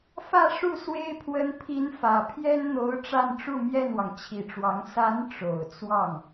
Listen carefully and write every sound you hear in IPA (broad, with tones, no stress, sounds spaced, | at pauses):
f ä˥˧ ʂ u˥˩ s w e˥ ɪ̯ pʰ w ə˧˥ n pʰ i˧˥ n f ä˨˩ pʰ j ɛ˥ n n̪ o˧˥ ʊ̯ ʈ͡ʂ a˥˧ n ʈ͡ʂ u˥˧ m j ɛ˥˩ n w ɑ˩ ŋ t͡ɕʰ i˨˩ ʈ͡ʂ w ɑ˧˥ ŋ s a˧˥ n ʈ͡ʂ o˨˩ ʊ̯ t͡s w ɑ˥˩ ŋ